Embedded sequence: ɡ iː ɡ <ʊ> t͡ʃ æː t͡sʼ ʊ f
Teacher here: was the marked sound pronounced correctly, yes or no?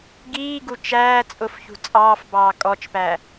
no